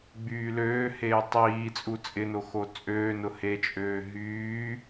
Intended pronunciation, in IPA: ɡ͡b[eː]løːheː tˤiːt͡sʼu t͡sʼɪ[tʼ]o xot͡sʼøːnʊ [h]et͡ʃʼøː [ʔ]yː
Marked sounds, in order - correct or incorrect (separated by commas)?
incorrect, incorrect, correct, incorrect